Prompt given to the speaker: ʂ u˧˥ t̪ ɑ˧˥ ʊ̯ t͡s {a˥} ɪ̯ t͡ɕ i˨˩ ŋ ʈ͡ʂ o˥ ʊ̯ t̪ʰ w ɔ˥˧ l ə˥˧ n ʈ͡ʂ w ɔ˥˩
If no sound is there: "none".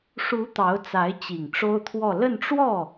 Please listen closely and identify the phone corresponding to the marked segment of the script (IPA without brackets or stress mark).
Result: a˧˥